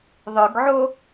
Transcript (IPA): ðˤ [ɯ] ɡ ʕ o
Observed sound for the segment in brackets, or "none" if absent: ɯ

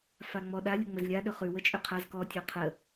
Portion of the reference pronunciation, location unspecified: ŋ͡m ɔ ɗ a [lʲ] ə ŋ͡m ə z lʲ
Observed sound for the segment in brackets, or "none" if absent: lʲ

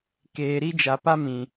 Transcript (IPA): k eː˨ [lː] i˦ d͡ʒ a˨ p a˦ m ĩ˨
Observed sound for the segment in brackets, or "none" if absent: ɾ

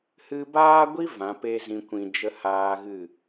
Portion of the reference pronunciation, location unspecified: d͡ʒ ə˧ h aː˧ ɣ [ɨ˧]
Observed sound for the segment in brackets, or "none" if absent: ɨ˦˨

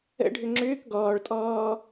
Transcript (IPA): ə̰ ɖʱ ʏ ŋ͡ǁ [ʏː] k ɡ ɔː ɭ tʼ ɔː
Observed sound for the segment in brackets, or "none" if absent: ʏː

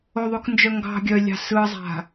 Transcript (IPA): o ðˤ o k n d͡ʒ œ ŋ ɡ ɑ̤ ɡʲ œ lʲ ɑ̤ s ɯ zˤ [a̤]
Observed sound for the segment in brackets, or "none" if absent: a̤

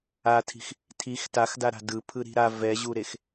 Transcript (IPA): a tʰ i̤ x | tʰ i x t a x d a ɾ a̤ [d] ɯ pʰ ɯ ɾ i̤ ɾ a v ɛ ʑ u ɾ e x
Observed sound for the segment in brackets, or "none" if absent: d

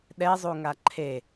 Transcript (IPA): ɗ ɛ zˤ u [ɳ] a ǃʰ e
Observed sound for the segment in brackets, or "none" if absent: ŋ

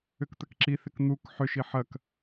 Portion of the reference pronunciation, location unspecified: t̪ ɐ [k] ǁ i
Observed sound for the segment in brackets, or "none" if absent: k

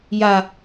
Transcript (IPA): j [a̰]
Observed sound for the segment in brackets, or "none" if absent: a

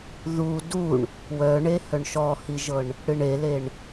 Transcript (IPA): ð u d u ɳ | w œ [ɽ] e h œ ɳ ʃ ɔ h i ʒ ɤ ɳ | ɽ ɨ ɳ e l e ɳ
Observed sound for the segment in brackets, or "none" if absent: ɳ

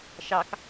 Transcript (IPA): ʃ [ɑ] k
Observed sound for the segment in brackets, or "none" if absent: ɑ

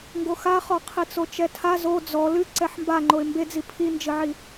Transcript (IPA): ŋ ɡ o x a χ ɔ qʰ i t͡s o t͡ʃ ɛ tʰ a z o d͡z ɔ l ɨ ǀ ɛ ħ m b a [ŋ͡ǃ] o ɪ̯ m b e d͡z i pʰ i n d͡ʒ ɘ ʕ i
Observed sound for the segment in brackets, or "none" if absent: ŋ͡ǃ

